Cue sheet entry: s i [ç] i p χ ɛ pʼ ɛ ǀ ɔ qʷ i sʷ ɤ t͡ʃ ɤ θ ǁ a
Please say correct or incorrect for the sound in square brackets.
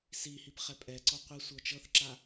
incorrect